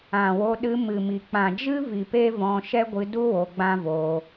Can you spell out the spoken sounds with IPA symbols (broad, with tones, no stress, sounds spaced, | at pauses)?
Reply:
ã˨ w o˧ ɗ ɨ˧ m ɨ˨ m i˨ k͡p ã˨ d͡ʒ ɨ˦ v i˨ p e˦ v ɔ̃˧ ʃ ɛ˦ ɡʷ ɨ˧ d u˦ w o˧ ɡ͡b ã˦ v o˧